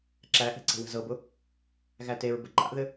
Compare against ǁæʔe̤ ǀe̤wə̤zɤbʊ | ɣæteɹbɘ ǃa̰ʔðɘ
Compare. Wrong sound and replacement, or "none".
none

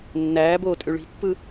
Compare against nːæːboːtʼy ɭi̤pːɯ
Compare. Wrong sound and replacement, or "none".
none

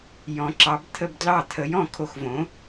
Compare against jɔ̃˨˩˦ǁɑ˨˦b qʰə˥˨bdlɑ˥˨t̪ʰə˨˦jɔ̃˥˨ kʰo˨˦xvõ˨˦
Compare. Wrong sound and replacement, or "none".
qʰ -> t̪ʰ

